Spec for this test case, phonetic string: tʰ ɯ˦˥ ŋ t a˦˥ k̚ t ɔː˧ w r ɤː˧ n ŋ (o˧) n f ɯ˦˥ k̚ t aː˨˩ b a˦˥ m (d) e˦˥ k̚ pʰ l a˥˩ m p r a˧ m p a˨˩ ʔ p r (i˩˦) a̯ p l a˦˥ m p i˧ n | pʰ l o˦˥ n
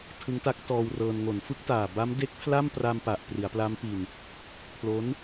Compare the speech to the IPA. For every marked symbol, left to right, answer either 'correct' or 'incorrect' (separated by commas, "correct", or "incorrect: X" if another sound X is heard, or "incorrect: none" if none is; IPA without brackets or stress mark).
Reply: incorrect: o˩˦, correct, correct